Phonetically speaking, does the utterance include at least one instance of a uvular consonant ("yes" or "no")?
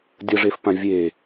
no